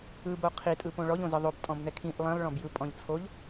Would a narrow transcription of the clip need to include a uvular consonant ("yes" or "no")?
yes